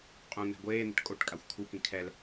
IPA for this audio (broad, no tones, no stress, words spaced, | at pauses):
qʼũ n̪ɛ̤ɡʷeːn̪ə̤ʈ kʼoʈkʼaxʷ kʰukĩ kʰɛl